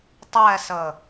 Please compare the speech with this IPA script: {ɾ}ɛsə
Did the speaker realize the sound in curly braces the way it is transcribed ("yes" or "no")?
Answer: no